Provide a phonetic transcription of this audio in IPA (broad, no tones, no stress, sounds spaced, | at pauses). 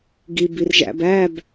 ɡ i b i r ʒ æ̰ b æ b